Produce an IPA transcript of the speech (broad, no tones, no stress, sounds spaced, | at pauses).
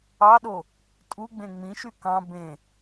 ɑ ɗ o | tʼ u ɡ͡b ẽ ŋ͡m ĩ ʃ y k ɑ̃ b ẽ